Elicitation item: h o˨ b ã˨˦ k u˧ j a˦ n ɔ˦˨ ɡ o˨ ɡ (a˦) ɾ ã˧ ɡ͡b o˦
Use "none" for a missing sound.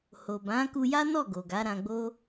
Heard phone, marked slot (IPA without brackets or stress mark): a˨˦